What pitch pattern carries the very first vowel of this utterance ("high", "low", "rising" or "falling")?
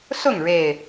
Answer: falling